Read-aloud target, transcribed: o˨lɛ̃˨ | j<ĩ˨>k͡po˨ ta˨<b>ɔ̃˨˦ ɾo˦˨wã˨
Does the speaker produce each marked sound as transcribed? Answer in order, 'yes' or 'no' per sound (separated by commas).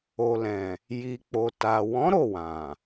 no, no